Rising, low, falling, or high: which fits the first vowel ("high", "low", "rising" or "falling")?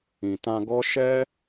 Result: low